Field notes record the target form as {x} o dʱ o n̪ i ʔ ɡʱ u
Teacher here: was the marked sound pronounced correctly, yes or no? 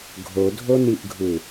no